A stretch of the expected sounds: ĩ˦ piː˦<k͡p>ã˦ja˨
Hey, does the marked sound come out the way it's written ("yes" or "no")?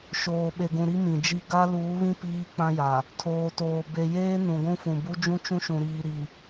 yes